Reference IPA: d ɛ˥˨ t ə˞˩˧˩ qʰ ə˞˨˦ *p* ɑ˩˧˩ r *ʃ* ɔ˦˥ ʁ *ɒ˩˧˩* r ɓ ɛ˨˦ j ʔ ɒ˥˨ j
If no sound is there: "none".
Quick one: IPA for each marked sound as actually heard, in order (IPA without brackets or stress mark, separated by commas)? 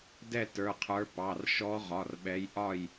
p, ʃ, ɒ˩˧˩